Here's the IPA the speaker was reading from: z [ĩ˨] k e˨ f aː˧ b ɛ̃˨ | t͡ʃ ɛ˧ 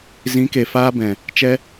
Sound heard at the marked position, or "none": ĩ˨˦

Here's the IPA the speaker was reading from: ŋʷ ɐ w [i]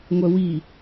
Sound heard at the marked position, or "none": i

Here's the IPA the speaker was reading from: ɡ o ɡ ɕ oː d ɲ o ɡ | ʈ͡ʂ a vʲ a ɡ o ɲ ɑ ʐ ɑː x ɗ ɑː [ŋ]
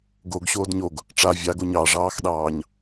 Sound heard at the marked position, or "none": ɲ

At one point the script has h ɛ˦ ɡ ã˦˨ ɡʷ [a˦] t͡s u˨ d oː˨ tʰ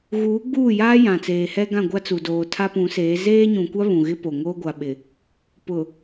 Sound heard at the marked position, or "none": a˦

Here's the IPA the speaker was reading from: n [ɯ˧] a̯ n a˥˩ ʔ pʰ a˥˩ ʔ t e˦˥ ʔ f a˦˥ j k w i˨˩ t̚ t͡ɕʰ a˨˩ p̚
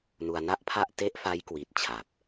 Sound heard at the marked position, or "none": u˧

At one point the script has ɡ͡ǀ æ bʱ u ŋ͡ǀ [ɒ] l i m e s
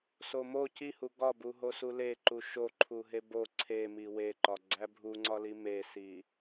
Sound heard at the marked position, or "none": ɒ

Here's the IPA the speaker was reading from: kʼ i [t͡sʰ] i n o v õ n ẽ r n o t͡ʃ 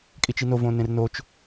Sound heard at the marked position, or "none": t͡ʃ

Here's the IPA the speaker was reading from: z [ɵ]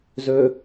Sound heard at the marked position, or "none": ɵ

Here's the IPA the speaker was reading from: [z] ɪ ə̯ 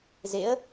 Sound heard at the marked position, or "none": z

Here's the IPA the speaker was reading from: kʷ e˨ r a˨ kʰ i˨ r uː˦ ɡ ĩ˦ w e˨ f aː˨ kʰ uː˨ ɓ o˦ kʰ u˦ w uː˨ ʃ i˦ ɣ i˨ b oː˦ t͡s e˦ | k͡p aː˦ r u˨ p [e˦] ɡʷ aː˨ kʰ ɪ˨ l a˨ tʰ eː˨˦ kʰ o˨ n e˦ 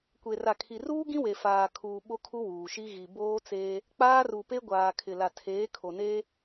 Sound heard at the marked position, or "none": e˦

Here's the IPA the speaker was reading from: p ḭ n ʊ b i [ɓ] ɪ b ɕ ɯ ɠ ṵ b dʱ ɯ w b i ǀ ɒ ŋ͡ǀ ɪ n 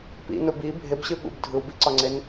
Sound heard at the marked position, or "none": bʱ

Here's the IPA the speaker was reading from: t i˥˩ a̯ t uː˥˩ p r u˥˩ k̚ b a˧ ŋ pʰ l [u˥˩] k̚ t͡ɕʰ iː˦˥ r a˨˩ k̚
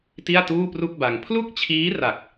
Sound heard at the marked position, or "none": u˥˩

